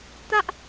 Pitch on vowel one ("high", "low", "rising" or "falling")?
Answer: high